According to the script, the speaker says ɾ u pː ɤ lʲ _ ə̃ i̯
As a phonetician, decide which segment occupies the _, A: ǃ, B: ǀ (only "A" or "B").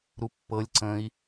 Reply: B